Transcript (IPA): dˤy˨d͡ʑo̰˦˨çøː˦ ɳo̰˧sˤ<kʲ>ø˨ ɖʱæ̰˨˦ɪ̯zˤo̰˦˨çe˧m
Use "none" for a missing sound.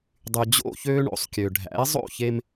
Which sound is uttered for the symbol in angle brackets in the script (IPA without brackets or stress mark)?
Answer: kʲ